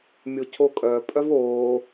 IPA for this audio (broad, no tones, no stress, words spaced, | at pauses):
mʲocʰokʼœ pʼœvoː